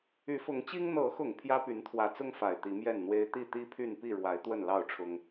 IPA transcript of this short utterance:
y˨˦ f ʊ˨˦ ŋ t͡ɕ i˦ ŋ n̪ ɤ˨˦ x ʊ˨˩ ŋ pʰ j ä˦ p y˨˦ n t̪ʰ w ä˨˦ t͡s ʊ˦ ŋ f a˨˩ ɪ̯ t̪ i˨˦ m j ɛ˥˨ n n̪ w e˦ ɪ̯ t̪ i˥˨ t̪ i˦ pʰ y˥˨ n p i˥˨ ɻ w a˨˦ ɪ̯ t̪ w ə˥˨ n l ɑ˥˨ ʊ̯ ʈ͡ʂʰ ʊ˦ ŋ

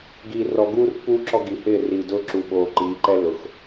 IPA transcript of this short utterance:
ɡ iː˨ r ɔ˨ ɡ uː˦ r pː uː˦ ǁ ɔ˦ ɡ i˨ h ɪː˦˨ r iː˨ d ʊː˦ ǁ uː˨ ɓ oː˨ ǃ iː˨˦ ǃ ɛ˦ lː ʊ˨ x

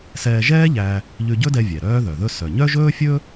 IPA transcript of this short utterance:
s ɛː˧ ʒ ɛː˥ ʎ æ˧ | ʎ ʉ˧ ɟ ɵ˥ d ɛ˧ vʲ ɛ˩ ɾ œː˧ ð œ˩ ð ɵ˧ s œ˩ ɲ œ˥ ʒ ɵː˥ fʲ ɵ˥

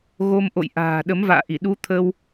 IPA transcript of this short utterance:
ɣ o˧ m ʔ o̰˧˨ j ʔ a̤ː˨˩ ɗ ə˨˦ m v a̰ː˧˨ ʔ i˧˩ ɗ u˧ t̪ʰ ə˧ w

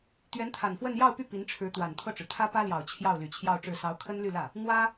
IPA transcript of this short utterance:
t̪ ɥ ɛ˧˥ n t̪ʰ a˨˩ n f w ə˥˧ n j ɑ˥˧ ʊ̯ p y˥˩ p i˧˥ n ʈ͡ʂʰ ɻ̩˧˥ t̪ w a˨˩ n t̪ʰ ɤ˥˩ ʈ͡ʂ ɻ̩˩ t̪ʰ ä˥ p ä˥ l j ɑ˨˩ ʊ̯ t͡ɕʰ j ɑ˥˩ ʊ̯ l y˨˩ t͡ɕʰ j ɑ˥˧ ʊ̯ ʈ͡ʂ ɻ̩˥˩ s ɑ˧˥ ʊ̯ kʰ ə˥ n l y˥˧ l ä˥˩ | n̪ w ä˥

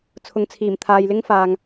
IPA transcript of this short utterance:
t͡sʰ ʊ˨ ŋ t͡sʰ iː˨˩ m t̪ʰ aː˨ j l ɪ˥ ŋ f aː˧ ŋ

